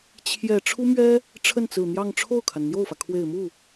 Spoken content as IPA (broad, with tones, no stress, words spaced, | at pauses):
t͡ɕʰjɛ˨˩ ʈ͡ʂʰu˥mɥɛ˥ | ʈ͡ʂʰə˥˩nt͡sɹ̩˨˩n̪jɑ˥˧ŋ ʈ͡ʂʰo˥˩ʊ̯kʰa˩nn̪jo˥˩ʊ̯fä˩ kʰwe˨˩ɪ̯mu˥˩